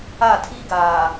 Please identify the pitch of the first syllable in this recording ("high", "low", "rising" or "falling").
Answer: falling